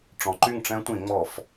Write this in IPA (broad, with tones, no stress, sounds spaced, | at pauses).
ʈ͡ʂ ɔ̃˨˦ ǃ y˥˩ ŋ ʈ͡ʂ ɛ̃˦˥ tʷ ĩ˧˩˧ ŋ͡m ɔ˧˩˧ f